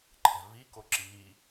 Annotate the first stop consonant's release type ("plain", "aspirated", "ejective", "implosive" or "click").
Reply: click